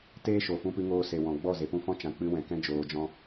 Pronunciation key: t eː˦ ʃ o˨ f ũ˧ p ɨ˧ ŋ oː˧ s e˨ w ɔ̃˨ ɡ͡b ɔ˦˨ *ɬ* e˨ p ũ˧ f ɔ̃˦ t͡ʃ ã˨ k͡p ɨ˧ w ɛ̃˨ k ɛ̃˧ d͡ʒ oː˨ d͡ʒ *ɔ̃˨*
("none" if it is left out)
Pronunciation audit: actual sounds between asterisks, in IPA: z, ɔ̃˧

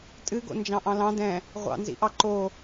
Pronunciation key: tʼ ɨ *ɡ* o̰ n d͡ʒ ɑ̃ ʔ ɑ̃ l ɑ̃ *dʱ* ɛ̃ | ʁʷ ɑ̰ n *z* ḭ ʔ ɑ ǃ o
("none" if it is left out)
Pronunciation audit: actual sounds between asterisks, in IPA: ɡ, d, z

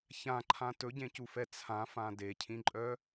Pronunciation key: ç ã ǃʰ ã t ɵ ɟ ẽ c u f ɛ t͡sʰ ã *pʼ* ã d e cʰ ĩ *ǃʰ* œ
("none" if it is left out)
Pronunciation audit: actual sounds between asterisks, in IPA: f, ǃʼ

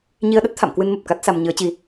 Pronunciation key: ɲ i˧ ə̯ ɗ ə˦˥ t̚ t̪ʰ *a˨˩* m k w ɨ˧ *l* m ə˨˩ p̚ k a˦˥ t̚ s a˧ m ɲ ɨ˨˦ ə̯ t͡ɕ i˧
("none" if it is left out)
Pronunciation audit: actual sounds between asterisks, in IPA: a̰˧˨, n

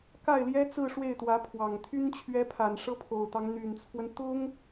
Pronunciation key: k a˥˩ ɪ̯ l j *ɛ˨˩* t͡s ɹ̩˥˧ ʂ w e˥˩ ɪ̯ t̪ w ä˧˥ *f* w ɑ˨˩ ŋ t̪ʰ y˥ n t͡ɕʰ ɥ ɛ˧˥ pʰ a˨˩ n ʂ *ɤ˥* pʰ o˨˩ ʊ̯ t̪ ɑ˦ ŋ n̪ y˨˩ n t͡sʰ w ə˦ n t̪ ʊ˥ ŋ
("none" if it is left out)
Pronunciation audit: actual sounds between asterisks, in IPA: ɛ˥, pʰ, ɤ˥

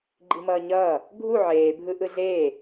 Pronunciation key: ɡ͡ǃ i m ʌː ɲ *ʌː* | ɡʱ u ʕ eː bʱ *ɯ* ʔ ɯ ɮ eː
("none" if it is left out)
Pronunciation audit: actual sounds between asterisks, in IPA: ʌː, ɯ

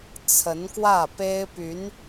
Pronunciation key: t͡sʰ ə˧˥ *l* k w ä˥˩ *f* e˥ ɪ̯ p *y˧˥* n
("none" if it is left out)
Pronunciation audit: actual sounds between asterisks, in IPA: n, p, y˧˥

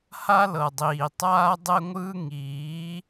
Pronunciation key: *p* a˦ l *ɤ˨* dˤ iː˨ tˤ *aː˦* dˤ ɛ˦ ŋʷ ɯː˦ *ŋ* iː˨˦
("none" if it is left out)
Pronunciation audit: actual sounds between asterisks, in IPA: h, ɤ˨, aː˦, ŋ

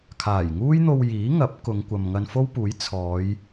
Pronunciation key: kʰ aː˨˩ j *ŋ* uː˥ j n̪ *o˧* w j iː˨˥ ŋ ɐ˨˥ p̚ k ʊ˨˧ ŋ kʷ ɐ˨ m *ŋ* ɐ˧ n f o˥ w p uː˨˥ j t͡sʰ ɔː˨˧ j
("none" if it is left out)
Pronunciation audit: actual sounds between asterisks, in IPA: ŋ, o˧, ŋ

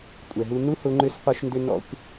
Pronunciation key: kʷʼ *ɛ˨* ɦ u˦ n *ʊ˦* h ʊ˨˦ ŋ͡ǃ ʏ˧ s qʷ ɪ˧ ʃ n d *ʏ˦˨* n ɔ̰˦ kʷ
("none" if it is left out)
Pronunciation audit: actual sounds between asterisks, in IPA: ɛ˨, u˦, ʏ˧

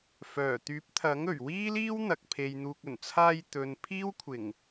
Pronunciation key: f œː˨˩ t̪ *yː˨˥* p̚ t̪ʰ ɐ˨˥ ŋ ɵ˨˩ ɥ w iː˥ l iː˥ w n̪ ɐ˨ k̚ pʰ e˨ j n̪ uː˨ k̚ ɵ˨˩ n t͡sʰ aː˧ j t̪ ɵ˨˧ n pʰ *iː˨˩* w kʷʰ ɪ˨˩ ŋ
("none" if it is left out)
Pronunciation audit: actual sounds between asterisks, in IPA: yː˨˥, iː˥

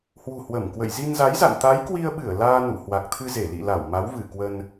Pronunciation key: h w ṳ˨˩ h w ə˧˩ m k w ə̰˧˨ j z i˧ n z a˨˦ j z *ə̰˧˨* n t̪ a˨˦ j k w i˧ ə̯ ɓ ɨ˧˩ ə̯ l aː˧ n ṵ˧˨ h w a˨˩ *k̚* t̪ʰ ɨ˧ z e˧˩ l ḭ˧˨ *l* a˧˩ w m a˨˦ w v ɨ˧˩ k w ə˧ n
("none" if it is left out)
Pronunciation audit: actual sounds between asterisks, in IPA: a̰˧˨, k̚, l

